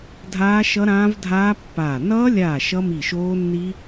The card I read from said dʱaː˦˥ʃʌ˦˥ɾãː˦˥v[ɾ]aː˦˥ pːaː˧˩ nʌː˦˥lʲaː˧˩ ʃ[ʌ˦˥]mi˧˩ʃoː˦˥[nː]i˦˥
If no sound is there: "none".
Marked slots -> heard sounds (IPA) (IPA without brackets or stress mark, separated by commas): dʱ, ʌ˦˥, nː